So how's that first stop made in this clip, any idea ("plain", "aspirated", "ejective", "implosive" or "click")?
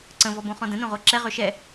click